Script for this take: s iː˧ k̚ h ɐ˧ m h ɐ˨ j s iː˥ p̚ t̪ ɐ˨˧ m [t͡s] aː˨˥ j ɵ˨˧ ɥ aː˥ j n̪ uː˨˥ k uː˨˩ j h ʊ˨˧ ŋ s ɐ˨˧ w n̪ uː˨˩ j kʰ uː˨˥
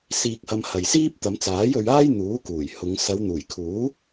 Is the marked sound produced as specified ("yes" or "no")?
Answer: yes